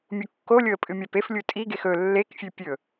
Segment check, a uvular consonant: absent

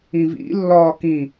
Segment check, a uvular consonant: absent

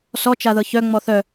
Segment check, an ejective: absent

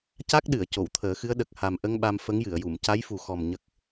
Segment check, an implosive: present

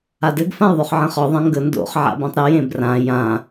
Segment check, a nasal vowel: present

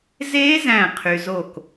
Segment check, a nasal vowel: present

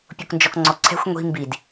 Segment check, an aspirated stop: present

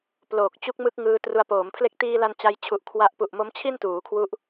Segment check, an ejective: absent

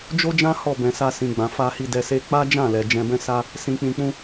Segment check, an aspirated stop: absent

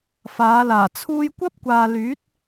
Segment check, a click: absent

